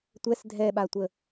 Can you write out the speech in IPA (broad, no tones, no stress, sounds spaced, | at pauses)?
tʷ ɛ s dʱ ɛ ɓ a tʷ ə